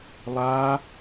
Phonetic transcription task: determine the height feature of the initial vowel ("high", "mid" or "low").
low